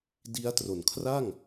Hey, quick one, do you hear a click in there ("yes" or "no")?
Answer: no